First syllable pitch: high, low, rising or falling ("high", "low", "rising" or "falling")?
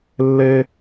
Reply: high